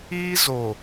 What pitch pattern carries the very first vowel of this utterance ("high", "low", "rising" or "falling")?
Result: high